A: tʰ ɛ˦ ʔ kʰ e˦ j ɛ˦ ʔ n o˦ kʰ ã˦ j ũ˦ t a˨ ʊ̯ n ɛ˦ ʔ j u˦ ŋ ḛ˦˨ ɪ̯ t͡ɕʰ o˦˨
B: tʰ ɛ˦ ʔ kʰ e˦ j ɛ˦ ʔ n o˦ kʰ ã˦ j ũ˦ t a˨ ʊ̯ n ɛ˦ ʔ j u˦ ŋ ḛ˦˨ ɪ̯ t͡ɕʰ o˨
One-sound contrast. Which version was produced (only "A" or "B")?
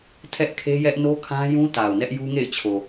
B